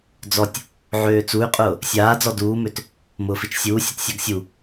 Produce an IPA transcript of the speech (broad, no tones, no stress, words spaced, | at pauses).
d͡zɔtʲ | ʕøːt͡suy̯qʼʊː | sʲaːd͡zɔ duːmøt | mʊːfit͡ʃsʲuːsʲot sʲaɡsʲu